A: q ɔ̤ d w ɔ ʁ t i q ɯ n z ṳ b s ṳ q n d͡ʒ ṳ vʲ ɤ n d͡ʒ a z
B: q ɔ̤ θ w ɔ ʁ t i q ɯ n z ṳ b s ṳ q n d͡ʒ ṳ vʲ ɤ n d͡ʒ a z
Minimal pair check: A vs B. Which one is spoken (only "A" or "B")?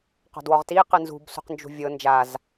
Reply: A